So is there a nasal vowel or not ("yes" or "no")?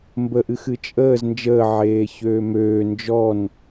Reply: no